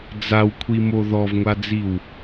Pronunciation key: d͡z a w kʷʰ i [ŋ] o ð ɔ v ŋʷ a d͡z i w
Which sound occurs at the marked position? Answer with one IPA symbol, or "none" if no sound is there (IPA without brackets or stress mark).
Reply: m